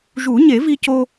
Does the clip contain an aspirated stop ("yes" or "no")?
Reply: no